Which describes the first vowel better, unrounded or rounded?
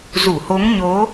rounded